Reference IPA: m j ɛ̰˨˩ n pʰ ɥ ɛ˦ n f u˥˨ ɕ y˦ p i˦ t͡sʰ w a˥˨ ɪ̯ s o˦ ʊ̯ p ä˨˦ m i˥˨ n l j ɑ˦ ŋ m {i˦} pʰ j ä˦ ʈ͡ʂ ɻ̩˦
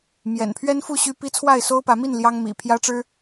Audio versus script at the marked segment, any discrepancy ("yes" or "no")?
yes